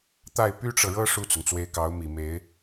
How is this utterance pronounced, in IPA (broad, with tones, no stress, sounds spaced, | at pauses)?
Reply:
t̪ a˥˩ ɪ̯ p y˥ ʈ͡ʂ ɤ˨ ɻ ɤ˥ ʂ u˥˩ t͡s ʊ˩ ŋ t͡s w e˧˥ ɪ̯ k ɑ˧˥ ʊ̯ m i˨˩ m e˧˥ ɪ̯